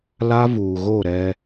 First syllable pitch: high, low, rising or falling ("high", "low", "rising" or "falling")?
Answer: high